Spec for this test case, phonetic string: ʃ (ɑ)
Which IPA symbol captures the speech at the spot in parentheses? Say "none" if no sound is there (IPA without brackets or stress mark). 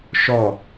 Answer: ɔ